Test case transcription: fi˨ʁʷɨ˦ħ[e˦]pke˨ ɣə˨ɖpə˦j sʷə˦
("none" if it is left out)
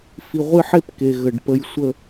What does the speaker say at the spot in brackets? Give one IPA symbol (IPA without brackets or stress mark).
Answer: e˦